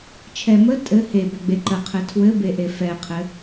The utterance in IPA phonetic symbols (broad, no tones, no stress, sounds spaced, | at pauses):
t͡ʃʰ ɛ m ə tʼ ɘ h e b ɛ ɡ͡b e ǃ ə qʰ ɘ tʰ w ɘ b e ʔ e f ɛ qʰ ɘ